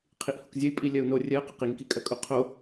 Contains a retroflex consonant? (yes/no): no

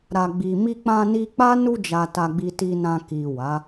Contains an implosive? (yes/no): no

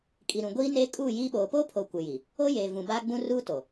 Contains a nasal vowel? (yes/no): yes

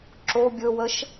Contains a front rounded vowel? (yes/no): no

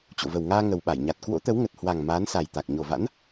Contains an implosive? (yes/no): yes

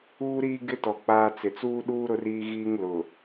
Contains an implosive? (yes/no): yes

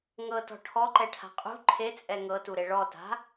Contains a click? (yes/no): yes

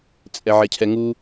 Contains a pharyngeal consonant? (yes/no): yes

